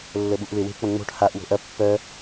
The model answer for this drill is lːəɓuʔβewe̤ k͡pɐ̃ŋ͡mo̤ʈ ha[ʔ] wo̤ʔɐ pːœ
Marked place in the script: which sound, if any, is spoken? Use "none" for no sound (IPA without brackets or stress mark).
ʔ